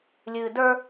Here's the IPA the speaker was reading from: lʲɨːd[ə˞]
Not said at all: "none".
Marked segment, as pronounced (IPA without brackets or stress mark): ə˞